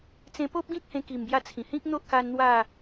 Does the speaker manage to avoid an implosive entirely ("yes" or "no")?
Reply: yes